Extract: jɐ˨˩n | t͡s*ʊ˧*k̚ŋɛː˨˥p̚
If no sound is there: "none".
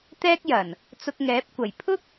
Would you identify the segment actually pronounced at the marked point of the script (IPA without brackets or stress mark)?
ʊ˧